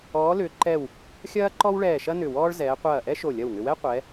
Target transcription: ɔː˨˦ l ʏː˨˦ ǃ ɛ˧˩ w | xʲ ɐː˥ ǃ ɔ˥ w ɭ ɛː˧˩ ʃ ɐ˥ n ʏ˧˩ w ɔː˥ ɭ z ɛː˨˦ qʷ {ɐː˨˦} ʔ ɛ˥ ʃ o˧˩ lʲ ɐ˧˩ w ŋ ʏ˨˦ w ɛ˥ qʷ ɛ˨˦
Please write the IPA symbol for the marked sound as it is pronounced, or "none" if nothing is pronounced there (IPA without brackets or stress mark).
ɐː˧˩